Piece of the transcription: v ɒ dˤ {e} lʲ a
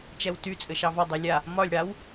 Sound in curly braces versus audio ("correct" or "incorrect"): correct